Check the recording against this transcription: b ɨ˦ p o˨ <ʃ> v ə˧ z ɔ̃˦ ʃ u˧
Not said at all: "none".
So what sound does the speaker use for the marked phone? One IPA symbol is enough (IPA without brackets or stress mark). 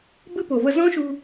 none